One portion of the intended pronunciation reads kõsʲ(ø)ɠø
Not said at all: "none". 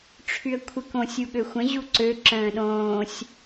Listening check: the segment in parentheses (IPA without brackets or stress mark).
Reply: u